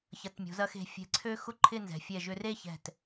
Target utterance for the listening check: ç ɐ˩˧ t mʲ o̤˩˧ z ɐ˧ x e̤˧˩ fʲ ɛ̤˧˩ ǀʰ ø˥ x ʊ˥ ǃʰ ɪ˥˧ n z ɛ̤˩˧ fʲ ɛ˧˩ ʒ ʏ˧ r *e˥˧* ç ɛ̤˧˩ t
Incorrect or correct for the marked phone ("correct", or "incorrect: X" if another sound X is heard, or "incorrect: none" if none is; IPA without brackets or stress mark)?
correct